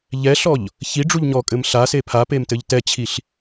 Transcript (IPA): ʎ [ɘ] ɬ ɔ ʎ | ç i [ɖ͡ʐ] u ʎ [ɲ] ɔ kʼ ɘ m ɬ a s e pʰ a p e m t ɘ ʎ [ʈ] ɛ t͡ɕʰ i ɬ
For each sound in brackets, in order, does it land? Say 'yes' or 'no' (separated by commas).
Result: no, yes, yes, no